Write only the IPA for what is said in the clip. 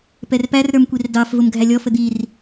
p ɛ r p æ r ɾ ə˞ m kʷ i r d ɑ f v ʊ m ɡʱ æ lʲ ɔ f ə d̪ i r

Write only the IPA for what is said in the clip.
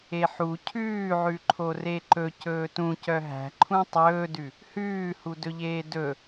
e ħ u cʰ ʉː ʕ ʉ ǃʰ o r e ǃ ɵ c ɵː t ũ c œ ɦ æ̤ ǃʰ ũ tˤ ɵː d ʉ | h ʉː h u d ɵ ʎ eː d ɵ

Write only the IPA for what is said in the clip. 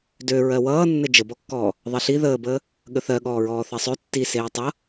d ø ɹ ɜ w ʌː nː ɘ d͡ʒ ə b ɔ kː ɔː | ðˤ e ɬ i ð əː b əː | ɠ ə θ ɜ ɠ ɔː ɹ ɔː θ ɜ sˤ ø tː i s eː tˤ ʌ

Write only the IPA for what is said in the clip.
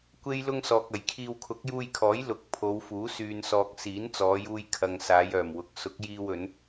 kʷ e˥ j l ʊ˥ ŋ s ɔː˨ k̚ ɐ˨˩ j kʰ iː˧ w kʰ ʊ˨˥ k̚ j uː˧ j kʰ ɔː˨˥ j l ʊ˨ k̚ pʰ o˨˧ w f uː˨˥ s yː˨ n s ɔː˨ k̚ s iː˨˥ n t͡s ɔː˨˧ j uː˧ j kʰ ɐ˨ ŋ s aː˨˧ j œː˨˩ m w ʊ˨˥ k̚ s ʊ˨˥ k̚ j iː˧ w ɵ˨˧ n

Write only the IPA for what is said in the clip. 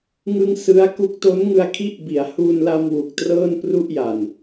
ŋ ɯ˧ ŋ s ɯ˦˥ a̯ k u˦˥ k̚ t o˦˥ n ŋ ɯ˧ a̯ kʰ i˦˥ ʔ b i˩˦ a̯ h u˧ n l a˧ m w u˨˩ k̚ t r ɤː˥˩ n p r u˥˩ ʔ j a˨˩ n

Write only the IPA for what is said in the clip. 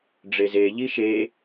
ɖ͡ʐ e z e ʎ i ʃ e

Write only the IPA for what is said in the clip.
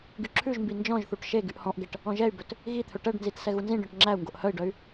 ɡ y ǁʰ ʉ ʒ m b i n d͡ʒ ɔ̃ ʒ θ u ʈ ʃ e ɡ y ʔ h ɔ̃ ʔ ɡ ɛ ʈ | ɔ̃ ʒ ɛ y̯ b ɵ t | ɣ i t̪ʰ ɵ ʈ ɛ ɖ n z i t s ɛ ɣ u n z ĩ ɖ ɔ̃ ʈ ŋ͡ǁ æ u̯ ŋ ɡ o ʔ h œ i̯ ɖ œ y̯

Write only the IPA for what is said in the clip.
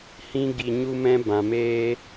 h ĩ˦ ɡ i˧ ɲ u˦ m ɛ̃˦ b ã˨ m eː˧

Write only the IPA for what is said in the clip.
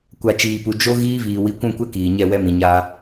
kʷ a˨ t͡ʃ iː˨ p u˨ d͡ʒ o˦ ɣ iː˦ v iː˨ w i˨˦ kʷ ũ˦˨ kʷ ɛ˦ k iː˨ ɲ ɛ˦˨ w ɛ˦ m ĩ˨ ɲ a˦

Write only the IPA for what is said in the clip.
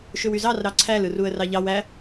ʃ ø w y z ɑ r ɾ ɑ ǀʰ æ l ɯ r u ə̯ r ɑ ʎ ɑ w æ

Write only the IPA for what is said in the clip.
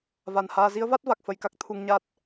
v a˧˩ n h aː˧ z i˨˦ ə̯ v a˦˥ t̚ v a˨˩ k̚ f ə˧ j k a˦˥ k̚ t̪ʰ u˧ ŋ ɲ a˦˥ t̚

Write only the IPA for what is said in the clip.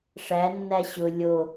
ʂ æ nː æ ɕ ʊ lʲ o

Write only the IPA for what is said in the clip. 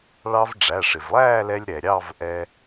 ɭ ɑ˧ v ɖ͡ʐ æ˩˧˩ ʂ ɪ˩ v lˠ æː˥˨ l ɛ˧ lʲ ɾ ɛ˩ ɾʲ ɑ˥˨ v ʔ ɛ˧

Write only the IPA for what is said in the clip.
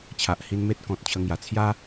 t͡ɕʰ a˨ ʔ h i˧ n m e˦ t̚ k ɔ̃˨ t̚ t͡ɕʰ ə˧ ŋ j a˨˩ t͡sʰ j a˦

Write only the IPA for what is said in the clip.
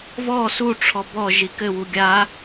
v ɔ s u ʈ͡ʂʰ ɔ b ɔ ʒ i k ɘ w u ɡʲ a

